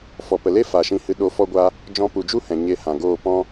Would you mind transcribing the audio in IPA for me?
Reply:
f ɔ˨ p ə˨ l e˦ f a˨ ʃ ĩ˧ h ɨ˧ ɗ o˧ f ɔ˦ ɡʷ a˦ | d͡ʒ ɔ̃˧ p u˨ d͡ʒ u˦ h ɛ̃˨ ɲ e˧ h ã˨ ɡ oː˦˨ p ɔ̃˦

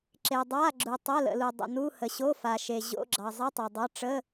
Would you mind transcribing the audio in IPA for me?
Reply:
ǁ e˨ dˤ a˧˥˧ ɡ͡ǁ u˨ tˤ ə˧˥˧ l ə̰˨ l u˨ dˤ ə̰˨ n u˧˥˧ h ə˨ ɕ o˧˥˧ f a˨ ʃ e˨ ʑ o̰˧˥˧ ɡ͡ǁ ɑ˨ zˤ i˧˥˧ tˤ e˨ dˤ ɑ˧˥˧ ʈ͡ʂ ə˧˥˧

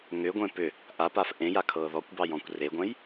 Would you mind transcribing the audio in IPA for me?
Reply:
ŋ ʏ ɡʷ ẽ p ʏ | ʔ a p a f ʔ ẽ j a kʰ ɤː ð ɔ kʷ b ɑ j ɔ̃ kʷ r e ɡʷ ɛ̃ j

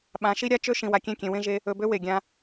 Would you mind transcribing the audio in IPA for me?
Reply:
ɓ ã˨˦ ʃ i˦ ɾʲ a˦ t͡ʃ ø˦ ʃ ĩ˨ w a˨ kʲ ẽ˦˨ kʲ ẽ˨ w ẽ˧ ʒ e˧ | ɵ˧ b ø˦ w e˨ ɡʲ ã˧

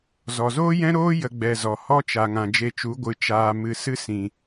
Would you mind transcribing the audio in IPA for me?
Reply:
z ɔ˨ z oː˦ j ɛ̃˦ ɾ oː˦ j ə˦ ɡ͡b ɛ˧ z ɔ˨ h ɔ˦ t͡ʃ a˨ ŋ ã˨ d͡ʒ e˧ t͡ʃ u˨˦ ɡʷ ɨ˨ t͡ʃ aː˧ m ɨ˨ s ɨ˦ s ĩ˨

